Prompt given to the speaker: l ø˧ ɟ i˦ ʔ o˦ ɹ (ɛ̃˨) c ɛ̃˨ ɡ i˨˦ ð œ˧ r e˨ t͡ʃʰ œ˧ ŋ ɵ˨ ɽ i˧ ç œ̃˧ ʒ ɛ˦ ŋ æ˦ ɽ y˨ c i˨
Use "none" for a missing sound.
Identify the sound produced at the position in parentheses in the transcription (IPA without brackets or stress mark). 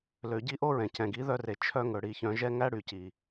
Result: ɛ̃˨